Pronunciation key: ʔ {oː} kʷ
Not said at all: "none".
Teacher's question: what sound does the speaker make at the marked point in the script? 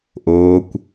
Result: oː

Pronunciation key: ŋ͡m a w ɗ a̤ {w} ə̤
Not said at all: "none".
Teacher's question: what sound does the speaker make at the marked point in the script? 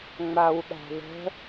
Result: ð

